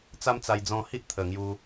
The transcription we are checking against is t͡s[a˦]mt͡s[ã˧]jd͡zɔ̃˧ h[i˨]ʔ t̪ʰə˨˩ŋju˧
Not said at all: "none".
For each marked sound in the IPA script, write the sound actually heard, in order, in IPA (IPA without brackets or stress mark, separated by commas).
a˦, a˧, i˦